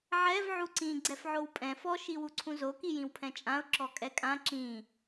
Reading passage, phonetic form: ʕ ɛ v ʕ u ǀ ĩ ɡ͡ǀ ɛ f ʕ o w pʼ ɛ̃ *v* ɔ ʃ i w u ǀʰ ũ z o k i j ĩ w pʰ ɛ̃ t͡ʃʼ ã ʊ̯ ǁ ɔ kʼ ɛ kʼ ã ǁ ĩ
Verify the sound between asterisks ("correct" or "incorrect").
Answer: incorrect